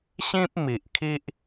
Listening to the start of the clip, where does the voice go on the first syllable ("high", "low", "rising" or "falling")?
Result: high